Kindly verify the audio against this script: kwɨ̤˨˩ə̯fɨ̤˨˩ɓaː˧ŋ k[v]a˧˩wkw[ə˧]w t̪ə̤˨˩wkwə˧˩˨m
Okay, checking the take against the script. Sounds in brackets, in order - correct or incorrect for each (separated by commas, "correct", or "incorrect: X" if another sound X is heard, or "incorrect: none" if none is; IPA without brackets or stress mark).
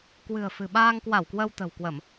incorrect: w, correct